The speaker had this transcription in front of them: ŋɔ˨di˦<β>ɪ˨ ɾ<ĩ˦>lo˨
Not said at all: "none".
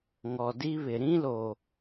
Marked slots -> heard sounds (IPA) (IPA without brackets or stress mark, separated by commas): β, ĩ˦